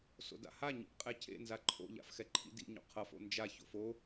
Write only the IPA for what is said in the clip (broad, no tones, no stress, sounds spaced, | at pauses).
s o̰ d a̰ h a ɲ ḭ ʔ qʼ ɛ cʰ ḛ n z a ǃʰ o̰ ʎ a̰ f x ɛ ǃʰ ḭ d ḭ ɲ o̰ qʰ ʌ f o̰ n d͡ʒ a ç o̰ f o